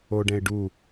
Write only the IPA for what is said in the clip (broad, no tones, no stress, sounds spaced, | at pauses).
o ɖ ɛ̃ ɪ̯ ɖ u